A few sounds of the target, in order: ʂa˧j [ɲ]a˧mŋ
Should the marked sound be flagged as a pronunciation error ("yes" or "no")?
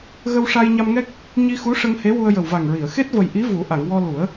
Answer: no